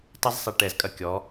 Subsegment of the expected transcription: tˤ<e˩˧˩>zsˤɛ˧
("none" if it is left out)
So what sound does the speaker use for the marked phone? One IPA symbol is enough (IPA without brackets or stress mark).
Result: e˥